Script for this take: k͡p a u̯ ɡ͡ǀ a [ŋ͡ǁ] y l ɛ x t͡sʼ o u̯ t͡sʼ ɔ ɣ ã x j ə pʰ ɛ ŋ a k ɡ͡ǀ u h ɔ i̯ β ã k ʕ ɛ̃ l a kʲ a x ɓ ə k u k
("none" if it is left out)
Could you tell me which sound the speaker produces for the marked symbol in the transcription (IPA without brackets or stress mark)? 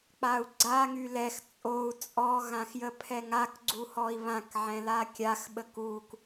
ŋ